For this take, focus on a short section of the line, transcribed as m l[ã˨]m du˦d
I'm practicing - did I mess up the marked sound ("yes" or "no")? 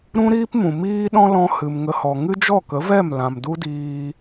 no